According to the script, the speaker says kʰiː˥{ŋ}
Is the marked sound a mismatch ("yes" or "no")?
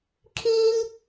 no